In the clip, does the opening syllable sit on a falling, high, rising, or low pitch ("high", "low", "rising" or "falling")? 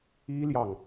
high